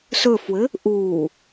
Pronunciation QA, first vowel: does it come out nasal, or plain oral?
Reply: oral